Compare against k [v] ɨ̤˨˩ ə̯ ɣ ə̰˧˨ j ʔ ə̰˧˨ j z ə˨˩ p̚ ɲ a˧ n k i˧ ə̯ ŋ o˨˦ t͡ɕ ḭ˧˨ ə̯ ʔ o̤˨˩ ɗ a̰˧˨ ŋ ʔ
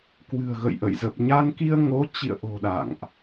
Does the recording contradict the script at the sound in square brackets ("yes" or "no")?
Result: yes